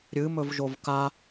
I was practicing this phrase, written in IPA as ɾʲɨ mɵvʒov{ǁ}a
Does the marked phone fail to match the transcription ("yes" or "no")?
yes